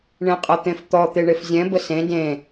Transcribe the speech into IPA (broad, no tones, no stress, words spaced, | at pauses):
ɳẽqʼɤt̪ẽft̪ɔ t̪eɳefzʲɛ̃ bəsẽ dẽ